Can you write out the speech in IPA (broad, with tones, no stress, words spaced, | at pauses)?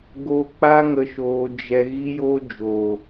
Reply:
ɡo˧k͡pa˦ ŋə˧ʃoː˧d͡ʒɛ˧ ɣi˦jo˦d͡ʒoː˨